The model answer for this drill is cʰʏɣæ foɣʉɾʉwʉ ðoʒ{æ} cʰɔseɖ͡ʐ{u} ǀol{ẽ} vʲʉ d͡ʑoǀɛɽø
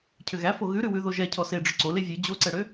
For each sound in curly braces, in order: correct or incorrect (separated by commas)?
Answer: incorrect, incorrect, incorrect